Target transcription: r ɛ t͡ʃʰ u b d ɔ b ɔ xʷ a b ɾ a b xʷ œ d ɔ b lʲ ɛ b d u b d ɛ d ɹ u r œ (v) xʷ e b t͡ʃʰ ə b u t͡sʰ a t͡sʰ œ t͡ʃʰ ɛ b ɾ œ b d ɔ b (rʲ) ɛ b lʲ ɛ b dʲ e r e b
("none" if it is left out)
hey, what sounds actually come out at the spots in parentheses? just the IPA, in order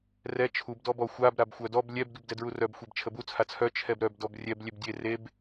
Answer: b, rʲ

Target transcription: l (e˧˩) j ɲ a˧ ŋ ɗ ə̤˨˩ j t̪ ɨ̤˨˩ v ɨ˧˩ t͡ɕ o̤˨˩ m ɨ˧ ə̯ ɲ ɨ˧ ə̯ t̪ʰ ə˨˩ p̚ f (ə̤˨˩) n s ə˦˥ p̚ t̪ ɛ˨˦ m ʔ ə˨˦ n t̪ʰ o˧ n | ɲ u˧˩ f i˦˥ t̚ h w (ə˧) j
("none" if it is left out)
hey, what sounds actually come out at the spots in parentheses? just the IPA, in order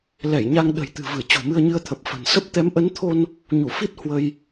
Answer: ɛ˧˩, ə̤˨˩, ə˧

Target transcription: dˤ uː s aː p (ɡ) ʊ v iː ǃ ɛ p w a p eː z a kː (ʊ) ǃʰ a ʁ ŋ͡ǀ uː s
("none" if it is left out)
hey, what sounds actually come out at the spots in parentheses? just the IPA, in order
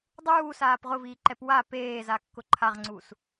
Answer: ʁ, ʊ

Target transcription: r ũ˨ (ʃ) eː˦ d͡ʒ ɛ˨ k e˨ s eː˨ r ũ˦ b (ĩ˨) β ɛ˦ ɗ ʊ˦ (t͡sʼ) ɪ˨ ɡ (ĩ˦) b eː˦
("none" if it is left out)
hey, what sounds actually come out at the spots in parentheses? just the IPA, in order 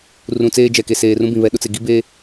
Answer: t͡s, ĩ˨, t͡s, i˦

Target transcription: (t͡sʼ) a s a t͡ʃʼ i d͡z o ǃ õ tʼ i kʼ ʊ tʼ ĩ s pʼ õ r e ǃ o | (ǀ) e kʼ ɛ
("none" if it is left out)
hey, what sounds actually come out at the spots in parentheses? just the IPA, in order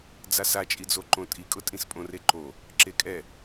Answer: d͡z, ǁ

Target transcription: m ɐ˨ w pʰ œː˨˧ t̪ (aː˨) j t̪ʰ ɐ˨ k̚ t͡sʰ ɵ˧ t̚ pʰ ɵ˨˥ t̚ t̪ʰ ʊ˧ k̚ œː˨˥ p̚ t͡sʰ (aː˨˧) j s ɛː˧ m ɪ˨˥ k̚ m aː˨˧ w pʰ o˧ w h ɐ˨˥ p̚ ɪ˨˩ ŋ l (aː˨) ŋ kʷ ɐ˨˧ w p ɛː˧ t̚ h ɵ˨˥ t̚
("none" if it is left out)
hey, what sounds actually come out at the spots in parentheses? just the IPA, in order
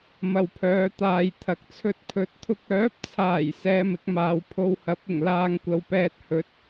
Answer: aː˨, aː˨˩, aː˧

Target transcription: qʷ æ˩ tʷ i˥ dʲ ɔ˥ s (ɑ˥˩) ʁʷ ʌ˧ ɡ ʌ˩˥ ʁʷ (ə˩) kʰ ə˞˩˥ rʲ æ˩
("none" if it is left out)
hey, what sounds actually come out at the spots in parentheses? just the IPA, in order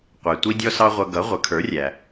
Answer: ɑ˥, ə˩˥

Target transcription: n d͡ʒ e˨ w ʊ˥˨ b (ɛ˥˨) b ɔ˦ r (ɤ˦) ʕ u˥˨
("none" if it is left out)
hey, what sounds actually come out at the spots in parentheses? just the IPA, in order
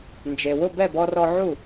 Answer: ɛ˥˨, ɔ˦

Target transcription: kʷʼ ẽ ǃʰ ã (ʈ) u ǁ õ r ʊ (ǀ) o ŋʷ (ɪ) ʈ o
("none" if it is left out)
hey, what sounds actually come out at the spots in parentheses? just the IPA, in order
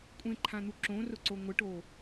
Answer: n̪, ǀ, ɪ

